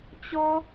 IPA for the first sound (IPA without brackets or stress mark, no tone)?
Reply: t͡ɕ